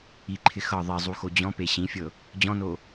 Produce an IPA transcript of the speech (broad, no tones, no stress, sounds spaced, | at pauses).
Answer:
i ǃʰ ɪ x ɤ ðˤ i zˤ u x o d͡ʑ ɔ̃ p e ɕ ĩ fʲ ɤ | d͡ʑ ɔ̃ n o